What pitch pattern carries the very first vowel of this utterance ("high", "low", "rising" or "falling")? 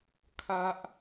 high